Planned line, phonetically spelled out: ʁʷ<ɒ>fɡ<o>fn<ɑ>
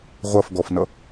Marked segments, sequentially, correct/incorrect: incorrect: ʌ, incorrect: ɔ, incorrect: ʌ

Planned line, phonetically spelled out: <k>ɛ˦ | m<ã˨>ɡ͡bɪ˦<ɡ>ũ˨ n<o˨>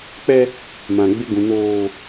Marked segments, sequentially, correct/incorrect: incorrect: k͡p, correct, correct, incorrect: oː˨

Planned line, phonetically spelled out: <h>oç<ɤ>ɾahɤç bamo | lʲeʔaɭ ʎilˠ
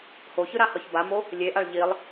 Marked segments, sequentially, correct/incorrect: correct, incorrect: ɯ

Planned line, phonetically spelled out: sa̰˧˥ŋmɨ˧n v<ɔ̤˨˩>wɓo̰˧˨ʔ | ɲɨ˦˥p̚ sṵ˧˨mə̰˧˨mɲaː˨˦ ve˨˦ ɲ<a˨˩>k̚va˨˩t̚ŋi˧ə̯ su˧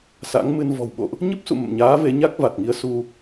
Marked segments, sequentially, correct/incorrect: correct, incorrect: a˦˥

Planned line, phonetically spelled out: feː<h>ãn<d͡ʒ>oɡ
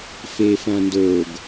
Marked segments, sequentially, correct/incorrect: incorrect: f, incorrect: d

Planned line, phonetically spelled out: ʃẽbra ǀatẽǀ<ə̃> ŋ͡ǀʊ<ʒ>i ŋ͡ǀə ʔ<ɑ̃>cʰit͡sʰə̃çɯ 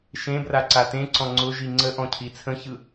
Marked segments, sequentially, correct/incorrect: incorrect: ɔ̃, correct, incorrect: ɔ̃

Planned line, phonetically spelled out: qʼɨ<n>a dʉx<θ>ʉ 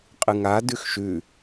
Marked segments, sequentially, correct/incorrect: incorrect: ŋ, incorrect: ʃ

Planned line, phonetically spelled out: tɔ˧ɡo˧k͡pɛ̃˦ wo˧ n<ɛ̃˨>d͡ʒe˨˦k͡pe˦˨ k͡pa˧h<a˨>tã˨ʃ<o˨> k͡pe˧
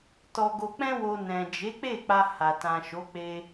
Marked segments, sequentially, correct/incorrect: correct, correct, incorrect: o˨˦

